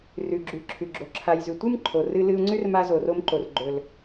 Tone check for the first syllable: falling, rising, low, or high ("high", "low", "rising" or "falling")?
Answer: low